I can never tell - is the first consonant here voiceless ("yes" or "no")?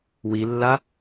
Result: no